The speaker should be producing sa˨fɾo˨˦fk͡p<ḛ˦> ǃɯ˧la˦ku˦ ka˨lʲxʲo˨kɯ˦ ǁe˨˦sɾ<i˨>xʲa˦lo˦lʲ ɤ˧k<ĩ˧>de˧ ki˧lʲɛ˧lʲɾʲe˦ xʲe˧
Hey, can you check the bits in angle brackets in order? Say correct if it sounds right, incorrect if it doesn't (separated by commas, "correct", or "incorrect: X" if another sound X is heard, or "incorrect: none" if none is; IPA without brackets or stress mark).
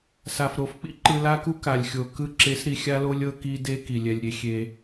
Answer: incorrect: ḭ˦, correct, incorrect: i˧